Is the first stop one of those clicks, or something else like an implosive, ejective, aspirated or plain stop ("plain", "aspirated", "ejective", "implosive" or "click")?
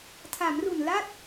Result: aspirated